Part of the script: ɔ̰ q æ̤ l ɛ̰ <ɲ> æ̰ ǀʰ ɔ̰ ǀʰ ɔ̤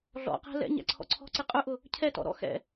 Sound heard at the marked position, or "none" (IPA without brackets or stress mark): ɲ